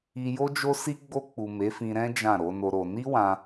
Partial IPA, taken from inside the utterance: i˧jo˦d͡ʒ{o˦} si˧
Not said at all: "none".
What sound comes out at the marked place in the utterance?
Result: o˦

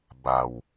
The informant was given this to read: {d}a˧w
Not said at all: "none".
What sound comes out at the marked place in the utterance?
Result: b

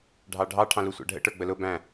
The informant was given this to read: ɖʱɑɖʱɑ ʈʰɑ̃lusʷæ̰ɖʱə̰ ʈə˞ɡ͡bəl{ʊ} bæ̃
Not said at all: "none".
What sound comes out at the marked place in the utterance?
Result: ʊ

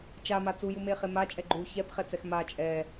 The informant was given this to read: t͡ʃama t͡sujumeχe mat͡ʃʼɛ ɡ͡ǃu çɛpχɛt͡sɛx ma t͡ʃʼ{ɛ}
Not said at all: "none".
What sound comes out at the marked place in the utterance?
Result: ɛ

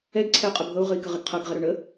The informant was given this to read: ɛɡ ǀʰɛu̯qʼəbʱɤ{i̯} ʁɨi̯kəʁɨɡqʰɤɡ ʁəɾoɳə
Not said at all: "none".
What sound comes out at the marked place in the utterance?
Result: u̯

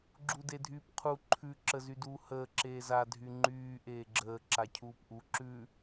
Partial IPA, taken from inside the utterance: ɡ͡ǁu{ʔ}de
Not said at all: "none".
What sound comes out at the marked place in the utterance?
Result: none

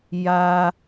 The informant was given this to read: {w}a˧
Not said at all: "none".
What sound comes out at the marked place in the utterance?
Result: j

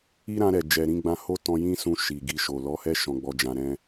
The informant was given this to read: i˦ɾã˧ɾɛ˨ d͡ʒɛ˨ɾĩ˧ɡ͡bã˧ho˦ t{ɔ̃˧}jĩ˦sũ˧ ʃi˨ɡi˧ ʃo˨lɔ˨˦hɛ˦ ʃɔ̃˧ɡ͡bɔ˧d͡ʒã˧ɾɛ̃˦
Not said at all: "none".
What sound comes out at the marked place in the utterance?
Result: ɔ̃˧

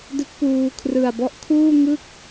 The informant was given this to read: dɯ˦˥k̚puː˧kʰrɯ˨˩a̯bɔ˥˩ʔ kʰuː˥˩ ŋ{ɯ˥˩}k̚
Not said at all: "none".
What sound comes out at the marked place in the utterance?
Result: ɯ˥˩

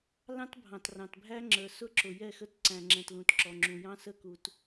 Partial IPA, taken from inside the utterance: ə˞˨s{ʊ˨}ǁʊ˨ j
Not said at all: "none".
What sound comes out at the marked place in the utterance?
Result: ʊ˦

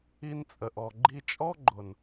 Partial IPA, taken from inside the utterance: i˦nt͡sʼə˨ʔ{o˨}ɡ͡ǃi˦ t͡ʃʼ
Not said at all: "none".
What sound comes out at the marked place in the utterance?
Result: ɔ˨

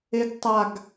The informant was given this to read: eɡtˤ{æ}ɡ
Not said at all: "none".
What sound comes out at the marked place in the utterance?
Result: a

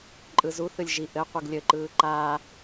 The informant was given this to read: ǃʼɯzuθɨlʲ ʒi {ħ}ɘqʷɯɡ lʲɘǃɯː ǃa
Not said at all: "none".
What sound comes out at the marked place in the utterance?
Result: ʔ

